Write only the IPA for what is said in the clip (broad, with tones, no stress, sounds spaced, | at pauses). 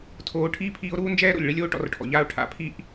tʰ oː˨ ʈʰ iː˦ pʰ iː˧ o̯ ɾ uː˦ n d͡ʒ ɛː˦ ɾ o̰˨ lʲ ɭ i˦ lʲ oː˦ ʈ ɔ̰˧ r ʈʰ ɔ̰˨ ʎ aː˦ o̯ ʈʰ a̰˨˦ pʰ i˦ ʔ